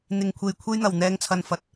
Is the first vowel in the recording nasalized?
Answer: no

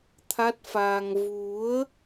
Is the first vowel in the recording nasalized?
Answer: no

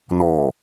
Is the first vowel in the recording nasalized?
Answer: no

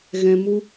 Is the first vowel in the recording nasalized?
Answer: yes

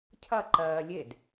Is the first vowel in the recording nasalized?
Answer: no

